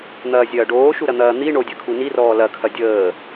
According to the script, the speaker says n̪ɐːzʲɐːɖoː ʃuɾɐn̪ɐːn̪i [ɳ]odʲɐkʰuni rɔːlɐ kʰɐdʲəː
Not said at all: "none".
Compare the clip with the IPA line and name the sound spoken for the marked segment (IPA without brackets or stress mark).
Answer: ɳ